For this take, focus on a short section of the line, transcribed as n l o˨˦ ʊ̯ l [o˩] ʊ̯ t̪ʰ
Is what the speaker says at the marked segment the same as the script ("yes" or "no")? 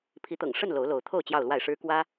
no